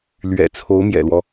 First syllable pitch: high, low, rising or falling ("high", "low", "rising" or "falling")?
low